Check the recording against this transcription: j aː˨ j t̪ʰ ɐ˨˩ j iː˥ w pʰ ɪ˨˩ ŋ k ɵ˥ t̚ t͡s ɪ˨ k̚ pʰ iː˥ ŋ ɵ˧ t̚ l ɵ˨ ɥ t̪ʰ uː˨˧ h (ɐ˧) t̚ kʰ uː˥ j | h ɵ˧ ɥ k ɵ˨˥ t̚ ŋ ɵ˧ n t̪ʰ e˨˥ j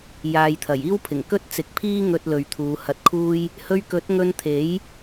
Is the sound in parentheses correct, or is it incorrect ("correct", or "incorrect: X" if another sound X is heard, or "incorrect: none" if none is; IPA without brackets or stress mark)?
correct